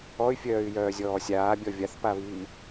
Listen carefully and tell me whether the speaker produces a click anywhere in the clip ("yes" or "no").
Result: no